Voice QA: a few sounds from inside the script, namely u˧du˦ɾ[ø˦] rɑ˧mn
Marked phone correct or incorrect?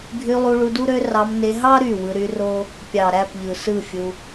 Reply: correct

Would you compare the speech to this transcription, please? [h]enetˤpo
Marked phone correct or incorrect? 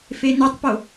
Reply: incorrect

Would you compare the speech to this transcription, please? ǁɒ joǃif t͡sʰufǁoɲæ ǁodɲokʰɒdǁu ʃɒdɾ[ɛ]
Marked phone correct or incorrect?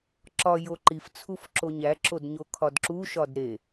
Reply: incorrect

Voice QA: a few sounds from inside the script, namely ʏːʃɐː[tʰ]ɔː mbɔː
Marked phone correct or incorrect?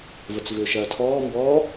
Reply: correct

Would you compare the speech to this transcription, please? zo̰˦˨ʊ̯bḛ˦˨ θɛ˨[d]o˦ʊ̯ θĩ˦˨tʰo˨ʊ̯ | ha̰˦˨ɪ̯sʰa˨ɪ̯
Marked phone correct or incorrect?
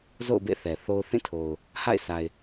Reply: incorrect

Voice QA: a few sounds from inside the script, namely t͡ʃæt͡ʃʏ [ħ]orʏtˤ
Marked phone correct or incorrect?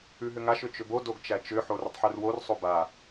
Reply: correct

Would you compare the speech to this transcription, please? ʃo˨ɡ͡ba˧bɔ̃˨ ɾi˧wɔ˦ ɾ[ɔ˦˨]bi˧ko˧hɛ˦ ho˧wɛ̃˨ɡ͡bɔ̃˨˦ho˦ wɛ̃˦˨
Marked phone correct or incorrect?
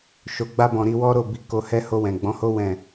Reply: incorrect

